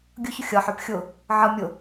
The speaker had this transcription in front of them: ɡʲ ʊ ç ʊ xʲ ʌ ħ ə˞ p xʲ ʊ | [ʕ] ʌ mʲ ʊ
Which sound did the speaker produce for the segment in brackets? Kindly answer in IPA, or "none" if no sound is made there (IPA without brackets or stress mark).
ʕ